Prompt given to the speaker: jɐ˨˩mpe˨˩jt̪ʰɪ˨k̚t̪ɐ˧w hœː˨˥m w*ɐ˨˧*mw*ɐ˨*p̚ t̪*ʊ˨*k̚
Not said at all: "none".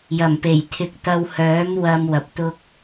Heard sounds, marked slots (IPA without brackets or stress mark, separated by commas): ɐ˧, ɐ˨, ʊ˧